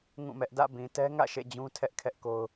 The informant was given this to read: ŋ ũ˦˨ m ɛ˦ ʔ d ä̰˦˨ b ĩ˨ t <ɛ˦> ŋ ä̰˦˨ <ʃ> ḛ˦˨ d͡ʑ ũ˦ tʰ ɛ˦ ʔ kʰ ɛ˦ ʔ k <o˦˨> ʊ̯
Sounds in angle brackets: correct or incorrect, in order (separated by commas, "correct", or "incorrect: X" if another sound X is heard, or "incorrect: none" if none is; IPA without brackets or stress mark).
correct, correct, incorrect: o˦